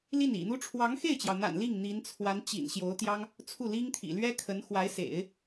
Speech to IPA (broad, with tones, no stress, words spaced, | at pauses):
li˥˩nḭ˨˩n̪u˥ ʈ͡ʂʰwɑ˧˥ŋxe˥˩ɪ̯t͡ɕjɑ˩ʊ̯n̪a̰˨˩n li˥˩ŋ n̪i˧˥nt͡sʰwa˧˥n t͡ɕḭ˨˩n ɕjo˧˥ʊ̯t̪jɑ˥ŋ | t͡sʰu˥˩li˥ŋt̪ʰḭ˨˩ lɥɛ˥kʰə˧˥n xwa˧˥ɪ̯sḛ˨˩˦ɪ̯